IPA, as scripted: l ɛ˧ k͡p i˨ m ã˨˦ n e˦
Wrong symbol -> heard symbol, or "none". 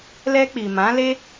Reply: n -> l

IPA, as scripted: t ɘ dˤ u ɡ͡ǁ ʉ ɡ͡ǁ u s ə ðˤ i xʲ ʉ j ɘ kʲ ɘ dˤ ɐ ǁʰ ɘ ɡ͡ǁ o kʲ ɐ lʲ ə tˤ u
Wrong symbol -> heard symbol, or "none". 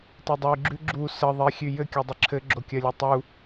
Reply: none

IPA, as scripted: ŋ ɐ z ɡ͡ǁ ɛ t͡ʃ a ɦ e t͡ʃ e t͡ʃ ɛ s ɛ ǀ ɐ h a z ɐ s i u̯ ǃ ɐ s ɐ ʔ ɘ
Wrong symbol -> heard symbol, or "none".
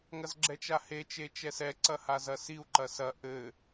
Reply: ɦ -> h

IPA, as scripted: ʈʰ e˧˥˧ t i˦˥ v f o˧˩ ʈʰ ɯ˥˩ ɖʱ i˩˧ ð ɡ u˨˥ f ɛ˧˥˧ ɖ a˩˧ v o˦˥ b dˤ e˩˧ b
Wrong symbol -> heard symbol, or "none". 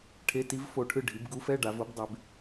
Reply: ð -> b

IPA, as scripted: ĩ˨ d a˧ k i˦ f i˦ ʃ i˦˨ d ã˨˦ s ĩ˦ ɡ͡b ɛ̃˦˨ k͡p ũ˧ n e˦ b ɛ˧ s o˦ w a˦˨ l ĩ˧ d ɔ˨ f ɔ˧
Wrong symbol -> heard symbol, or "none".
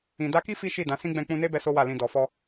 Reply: none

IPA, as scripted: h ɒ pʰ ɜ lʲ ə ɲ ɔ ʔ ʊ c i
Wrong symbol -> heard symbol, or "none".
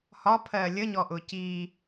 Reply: none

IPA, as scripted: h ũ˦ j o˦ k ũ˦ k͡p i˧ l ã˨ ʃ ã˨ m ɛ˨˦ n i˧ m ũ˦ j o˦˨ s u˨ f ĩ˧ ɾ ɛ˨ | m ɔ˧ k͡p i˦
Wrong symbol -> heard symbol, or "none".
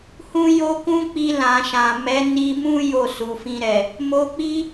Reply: ɔ˧ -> o˧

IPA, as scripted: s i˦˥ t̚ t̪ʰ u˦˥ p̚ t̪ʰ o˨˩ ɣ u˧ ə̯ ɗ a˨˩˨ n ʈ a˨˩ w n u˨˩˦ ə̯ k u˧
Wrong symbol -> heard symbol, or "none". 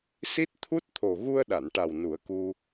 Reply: p̚ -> t̚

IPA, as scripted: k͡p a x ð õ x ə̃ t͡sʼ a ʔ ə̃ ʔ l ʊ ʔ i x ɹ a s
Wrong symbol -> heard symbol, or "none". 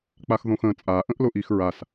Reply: none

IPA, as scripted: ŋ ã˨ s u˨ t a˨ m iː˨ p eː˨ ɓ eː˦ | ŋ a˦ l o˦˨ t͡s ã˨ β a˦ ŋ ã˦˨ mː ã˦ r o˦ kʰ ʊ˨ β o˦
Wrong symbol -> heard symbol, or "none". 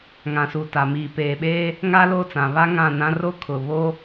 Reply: mː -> n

